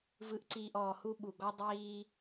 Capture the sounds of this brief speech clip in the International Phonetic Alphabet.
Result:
v ɯ˨˦ ʔ ǀ iː˨ ʔ ɔː˨ h u˦ ɓ u˨ ɡ ɔ˦ dˤ iː˦

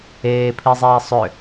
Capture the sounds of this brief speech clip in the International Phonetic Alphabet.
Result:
eː pʰ i zˤ iː sˤ ʏ

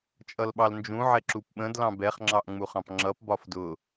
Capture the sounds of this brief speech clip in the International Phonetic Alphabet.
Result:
t͡ʃʼ ʌ l ɓ ɑ l n d͡ʒ ũ ʕ ɛ ǁ u p ɓ ə̃ d l ɑ̃ b ɛ χ ŋ͡ǁ ɑ ʔ ŋ͡m u χ ɑ̃ p ŋ͡ǁ ʌ p b ɒ f d ʊ

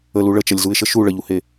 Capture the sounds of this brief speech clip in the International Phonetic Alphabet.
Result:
ə l u ɭ ə t͡ʃ ʌ lʲ z u ɪ̯ ʃ ə ʃ u ɭ ə ʎ u h e

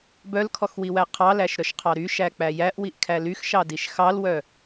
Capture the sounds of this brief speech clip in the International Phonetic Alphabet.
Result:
b œ l kʰ ɔ x w i w æ qʰ ɑ l æ ʃ ɾ œ ʃ qʰ ɑ ɾ y ʃ æ k͡p æ j æ ʔ w i ʔ kʰ æ l y x ʃ ɑ d i ʃ x ɑ l w œ

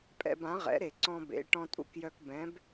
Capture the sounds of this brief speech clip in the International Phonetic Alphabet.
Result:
pʼ ɛ̰˧ b ã˩˥ ʁ ɛ̰˩˥ ɾ e˩ ǀ ɔ̃˧ b ḛ˩˥ ʈ ɔ̃˧ tʼ ṵ˥ k j œ˧ k b ɛ̃˩˥ b

